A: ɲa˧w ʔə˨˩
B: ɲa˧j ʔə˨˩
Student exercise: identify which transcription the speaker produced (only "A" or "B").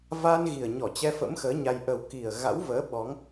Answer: B